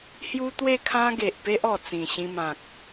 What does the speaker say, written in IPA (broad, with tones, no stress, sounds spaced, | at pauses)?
h j u˦ t̪ w e˥˧ kʰ ã˦ ɡ e˨ ʔ p e˦ ʔ ɔ˨˩ t͡s ĩ˨˩ ɕ ĩ˧ m ã˨ k̚